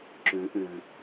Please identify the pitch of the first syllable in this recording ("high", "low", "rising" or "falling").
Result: rising